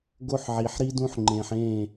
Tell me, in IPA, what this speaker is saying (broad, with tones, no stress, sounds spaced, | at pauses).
ɡ o˦ ħ ʕ i˨ ħ ɾ i˦ d ũ˦ ħ ŋ͡ǃ ẽ˨ ħ ẽː˦˨